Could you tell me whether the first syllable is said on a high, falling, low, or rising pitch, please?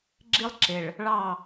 high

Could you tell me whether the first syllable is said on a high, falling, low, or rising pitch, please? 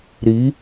rising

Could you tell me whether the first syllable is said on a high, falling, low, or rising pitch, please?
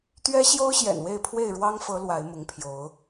high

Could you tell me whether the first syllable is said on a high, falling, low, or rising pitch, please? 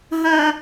high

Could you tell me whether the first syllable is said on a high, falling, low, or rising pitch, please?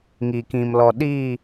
low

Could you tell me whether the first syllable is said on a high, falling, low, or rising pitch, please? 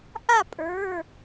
falling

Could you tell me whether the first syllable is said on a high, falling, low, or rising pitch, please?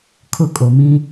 falling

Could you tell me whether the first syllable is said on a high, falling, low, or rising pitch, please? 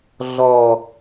low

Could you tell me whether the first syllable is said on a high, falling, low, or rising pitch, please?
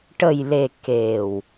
low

